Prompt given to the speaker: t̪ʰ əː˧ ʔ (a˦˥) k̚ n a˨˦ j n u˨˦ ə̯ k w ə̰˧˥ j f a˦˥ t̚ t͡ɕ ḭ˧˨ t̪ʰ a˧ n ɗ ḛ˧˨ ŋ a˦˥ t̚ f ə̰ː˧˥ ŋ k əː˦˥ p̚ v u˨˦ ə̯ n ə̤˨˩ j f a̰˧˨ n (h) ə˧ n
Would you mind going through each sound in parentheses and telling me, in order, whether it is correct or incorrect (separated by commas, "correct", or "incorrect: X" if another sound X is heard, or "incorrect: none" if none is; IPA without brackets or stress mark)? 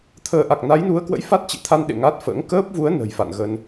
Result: incorrect: a˨˩, incorrect: ɣ